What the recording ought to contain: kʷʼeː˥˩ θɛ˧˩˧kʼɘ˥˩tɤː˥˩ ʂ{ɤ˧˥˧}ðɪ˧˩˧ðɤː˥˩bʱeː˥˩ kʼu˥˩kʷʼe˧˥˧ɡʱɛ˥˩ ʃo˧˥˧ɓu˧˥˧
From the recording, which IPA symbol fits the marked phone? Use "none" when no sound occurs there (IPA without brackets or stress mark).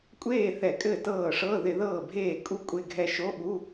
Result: ɤ˧˥˧